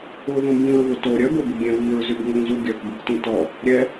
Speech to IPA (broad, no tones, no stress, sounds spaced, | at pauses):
ʊ ð ũ b ĩ ɹ β ʊ t o ɾʲ œ b o b u ɡʲ ɛ̃ β i ɹ z y b ŋ ʊ ŋ z u ɡʲ œ k b ɪ k t ĩ t ɔ | ɾʲ ɛ